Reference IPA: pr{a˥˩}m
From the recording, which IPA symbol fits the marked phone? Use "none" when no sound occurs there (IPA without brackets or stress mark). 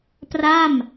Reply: a˥˩